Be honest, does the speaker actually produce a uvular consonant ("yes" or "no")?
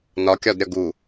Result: no